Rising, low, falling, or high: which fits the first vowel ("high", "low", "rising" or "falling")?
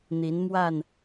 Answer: rising